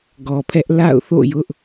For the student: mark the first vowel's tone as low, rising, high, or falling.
low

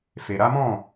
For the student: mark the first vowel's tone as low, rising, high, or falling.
low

